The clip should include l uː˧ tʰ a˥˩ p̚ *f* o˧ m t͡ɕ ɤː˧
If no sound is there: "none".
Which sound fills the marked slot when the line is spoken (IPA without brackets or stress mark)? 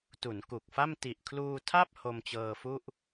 h